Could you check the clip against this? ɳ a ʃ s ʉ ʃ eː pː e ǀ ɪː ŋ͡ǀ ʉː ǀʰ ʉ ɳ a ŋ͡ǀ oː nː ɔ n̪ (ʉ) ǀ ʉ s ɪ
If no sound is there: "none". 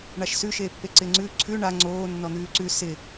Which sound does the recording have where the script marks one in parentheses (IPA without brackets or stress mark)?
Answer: ʉː